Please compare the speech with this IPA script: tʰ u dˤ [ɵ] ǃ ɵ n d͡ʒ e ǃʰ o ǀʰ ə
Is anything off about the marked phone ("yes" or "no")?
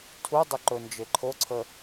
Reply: no